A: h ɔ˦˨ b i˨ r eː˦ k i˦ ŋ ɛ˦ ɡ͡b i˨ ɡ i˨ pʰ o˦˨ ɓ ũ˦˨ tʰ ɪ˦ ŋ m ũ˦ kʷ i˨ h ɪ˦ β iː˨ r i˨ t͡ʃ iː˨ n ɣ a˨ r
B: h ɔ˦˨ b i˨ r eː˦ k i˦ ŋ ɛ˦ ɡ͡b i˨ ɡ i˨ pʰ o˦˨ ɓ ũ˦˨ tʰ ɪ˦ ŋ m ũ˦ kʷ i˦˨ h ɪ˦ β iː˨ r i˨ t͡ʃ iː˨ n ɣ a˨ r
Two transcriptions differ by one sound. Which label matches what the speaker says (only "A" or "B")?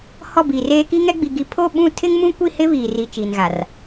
B